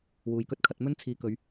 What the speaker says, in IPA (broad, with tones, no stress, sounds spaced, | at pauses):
w uː˨ j k ɵ˥ t̚ kʰ ɐ˧ t̚ m ɵ˥ n t͡sʰ iː˨˧ k ɵ˨˧ ɥ